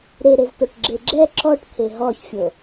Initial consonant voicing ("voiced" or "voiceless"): voiced